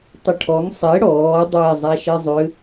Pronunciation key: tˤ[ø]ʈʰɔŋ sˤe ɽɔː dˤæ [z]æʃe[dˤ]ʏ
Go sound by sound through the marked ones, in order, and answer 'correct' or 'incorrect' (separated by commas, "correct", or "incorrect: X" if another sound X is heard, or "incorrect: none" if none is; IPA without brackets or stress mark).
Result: incorrect: ə, incorrect: zˤ, incorrect: zˤ